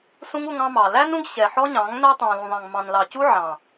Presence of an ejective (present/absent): absent